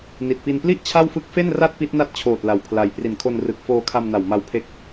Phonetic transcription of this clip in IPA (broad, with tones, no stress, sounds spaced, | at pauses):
n i˨˩ t̚ p i˧ n p l i˥˩ ʔ t͡ɕʰ a˥˩ w f ɯ˥˩ k̚ f e˥˩ n r a˥˩ t̚ p i˦˥ t̚ n a˦˥ t̚ t͡ɕʰ oː˨˩ t̚ l a˧ w pʰ l a˧ j p r i˨˩ n kʰ o˧ n r ɯ˨˩ k̚ f oː˧ kʰ a˧ m n a˨˩ w m a˦˥ w pʰ e˦˥ k̚